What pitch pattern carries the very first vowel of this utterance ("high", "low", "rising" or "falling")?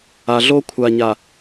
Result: low